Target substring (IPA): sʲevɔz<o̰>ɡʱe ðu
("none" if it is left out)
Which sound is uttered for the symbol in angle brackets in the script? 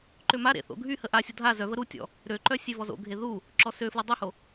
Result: o̰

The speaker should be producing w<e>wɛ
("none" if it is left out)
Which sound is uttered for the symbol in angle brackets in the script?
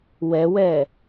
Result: ɛ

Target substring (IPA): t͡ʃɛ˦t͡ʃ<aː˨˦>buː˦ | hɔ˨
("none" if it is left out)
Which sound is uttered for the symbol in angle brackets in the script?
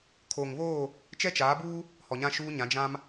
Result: aː˨˦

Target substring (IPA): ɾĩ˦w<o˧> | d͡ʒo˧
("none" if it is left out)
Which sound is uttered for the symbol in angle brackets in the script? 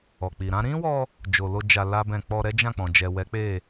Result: ɔ˧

